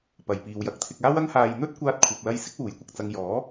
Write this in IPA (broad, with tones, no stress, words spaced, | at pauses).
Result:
pɐ˨jpiː˨wjɐ˨˥k̚t̪ʰɪ˧k̚ aː˥wɐ˥ŋhaː˧j n̪ɵ˥t̚kʷaː˧t̚kʷʰɐ˨p̚lɐ˧j sɪ˥k̚wuː˨˥jkʷɐ˨k̚ t͡sɐ˧ŋjɔː˨˥